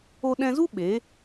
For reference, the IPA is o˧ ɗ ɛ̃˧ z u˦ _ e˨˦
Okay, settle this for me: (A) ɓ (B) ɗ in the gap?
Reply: A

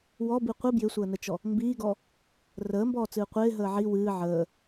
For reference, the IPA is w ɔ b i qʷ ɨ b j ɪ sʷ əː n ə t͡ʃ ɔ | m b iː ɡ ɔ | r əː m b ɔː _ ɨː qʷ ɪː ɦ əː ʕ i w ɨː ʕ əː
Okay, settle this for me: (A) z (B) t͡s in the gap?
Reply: B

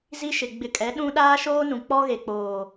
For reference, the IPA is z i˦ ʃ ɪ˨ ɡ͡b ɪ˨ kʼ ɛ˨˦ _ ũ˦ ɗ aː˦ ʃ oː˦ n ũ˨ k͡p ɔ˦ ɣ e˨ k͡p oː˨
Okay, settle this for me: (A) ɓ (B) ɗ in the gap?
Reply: B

